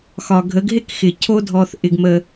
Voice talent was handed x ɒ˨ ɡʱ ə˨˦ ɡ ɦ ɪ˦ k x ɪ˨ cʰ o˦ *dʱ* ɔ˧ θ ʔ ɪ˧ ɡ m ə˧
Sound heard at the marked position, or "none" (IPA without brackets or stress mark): dʱ